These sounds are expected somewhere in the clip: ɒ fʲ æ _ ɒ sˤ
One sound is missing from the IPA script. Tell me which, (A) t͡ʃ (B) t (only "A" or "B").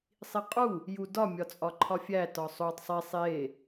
B